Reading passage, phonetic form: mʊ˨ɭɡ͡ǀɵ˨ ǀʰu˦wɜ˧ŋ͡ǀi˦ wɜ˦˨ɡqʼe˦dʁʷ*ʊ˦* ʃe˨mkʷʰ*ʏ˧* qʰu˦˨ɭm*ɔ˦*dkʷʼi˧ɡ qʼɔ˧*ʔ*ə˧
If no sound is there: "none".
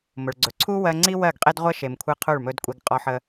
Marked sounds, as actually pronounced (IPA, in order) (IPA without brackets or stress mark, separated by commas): ə˦, ɨ˧, ɵ˦, ħ